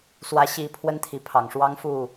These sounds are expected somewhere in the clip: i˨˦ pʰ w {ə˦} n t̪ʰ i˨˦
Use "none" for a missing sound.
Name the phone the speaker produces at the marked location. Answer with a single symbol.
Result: ə˦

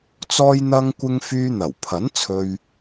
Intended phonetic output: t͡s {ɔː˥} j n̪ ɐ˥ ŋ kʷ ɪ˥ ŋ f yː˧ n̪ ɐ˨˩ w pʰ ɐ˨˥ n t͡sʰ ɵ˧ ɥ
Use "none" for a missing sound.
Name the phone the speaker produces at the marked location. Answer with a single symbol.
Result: ɔː˥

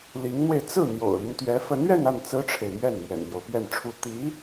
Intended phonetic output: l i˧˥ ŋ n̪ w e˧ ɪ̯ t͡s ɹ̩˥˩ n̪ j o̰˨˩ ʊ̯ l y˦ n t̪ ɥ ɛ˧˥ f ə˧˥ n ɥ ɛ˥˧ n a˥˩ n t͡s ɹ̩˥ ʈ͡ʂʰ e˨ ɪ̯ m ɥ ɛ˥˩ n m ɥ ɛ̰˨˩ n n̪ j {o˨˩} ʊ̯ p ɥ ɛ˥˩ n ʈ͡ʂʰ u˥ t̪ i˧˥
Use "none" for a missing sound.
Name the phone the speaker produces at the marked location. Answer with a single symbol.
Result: o˦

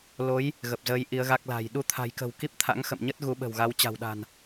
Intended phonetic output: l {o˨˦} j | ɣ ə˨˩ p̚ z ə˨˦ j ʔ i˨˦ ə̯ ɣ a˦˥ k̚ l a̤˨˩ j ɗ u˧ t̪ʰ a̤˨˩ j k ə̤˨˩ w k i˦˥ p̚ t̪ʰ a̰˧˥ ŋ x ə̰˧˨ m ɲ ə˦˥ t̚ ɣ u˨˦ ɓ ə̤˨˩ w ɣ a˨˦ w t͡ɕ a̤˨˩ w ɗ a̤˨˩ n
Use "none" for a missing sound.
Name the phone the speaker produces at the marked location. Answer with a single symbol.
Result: o˨˦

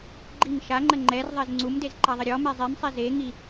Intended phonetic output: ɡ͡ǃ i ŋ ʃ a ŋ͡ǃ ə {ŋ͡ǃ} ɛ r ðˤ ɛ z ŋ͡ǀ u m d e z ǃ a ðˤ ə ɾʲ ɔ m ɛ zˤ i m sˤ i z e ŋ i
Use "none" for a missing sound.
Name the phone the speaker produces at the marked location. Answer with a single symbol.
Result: ŋ͡ǃ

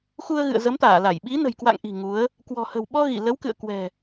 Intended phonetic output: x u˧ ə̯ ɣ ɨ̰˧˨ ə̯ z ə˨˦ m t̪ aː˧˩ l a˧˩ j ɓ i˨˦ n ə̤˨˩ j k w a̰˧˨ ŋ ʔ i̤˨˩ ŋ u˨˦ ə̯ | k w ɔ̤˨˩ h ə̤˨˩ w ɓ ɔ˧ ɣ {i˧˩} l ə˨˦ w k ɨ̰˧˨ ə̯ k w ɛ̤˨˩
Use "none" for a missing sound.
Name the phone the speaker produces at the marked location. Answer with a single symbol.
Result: i˧˩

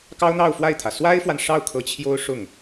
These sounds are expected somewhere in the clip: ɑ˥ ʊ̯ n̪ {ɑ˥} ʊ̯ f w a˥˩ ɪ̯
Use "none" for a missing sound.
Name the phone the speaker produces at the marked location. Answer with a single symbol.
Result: ɑ˥˧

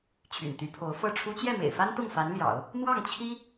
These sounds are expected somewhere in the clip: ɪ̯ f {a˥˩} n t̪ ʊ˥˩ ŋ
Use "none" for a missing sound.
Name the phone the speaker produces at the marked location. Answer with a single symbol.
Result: a˥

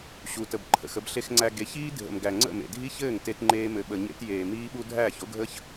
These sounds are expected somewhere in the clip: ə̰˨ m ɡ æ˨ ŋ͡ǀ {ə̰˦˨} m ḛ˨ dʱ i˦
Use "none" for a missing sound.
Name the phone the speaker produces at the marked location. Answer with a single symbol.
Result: ə̰˦˨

